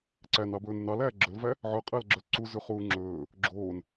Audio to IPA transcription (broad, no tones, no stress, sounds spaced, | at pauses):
ǀ æ n ɑ b ɵː n u n ɑ l æː ɡ͡ǁ ɵ l v æ | ʕ œ qʼ æ l ɡ͡ǁ œ l ǀ u z ʉ χ uː ŋ͡ǁ ɵː | ɡ͡ǁ oː n